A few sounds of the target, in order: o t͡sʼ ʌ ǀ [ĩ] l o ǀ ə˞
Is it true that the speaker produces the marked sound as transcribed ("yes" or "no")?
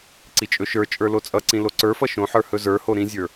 yes